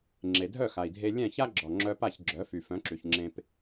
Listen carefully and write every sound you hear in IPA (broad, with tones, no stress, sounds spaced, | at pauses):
ŋ͡ǁ e˩ dʱ œ˥˩ x a˩ i̯ dʱ e˧ lʲ ɛ̃˥˩ ç a˥ ɡ͡ǁ ɔ˩ ŋ͡ǁ œ˧ p a˥˩ ç ɡ͡ǁ œ˩˥ f y˩ f œ̃˩˥ ǁ y˩ ç ŋ͡ǁ ẽ˧ p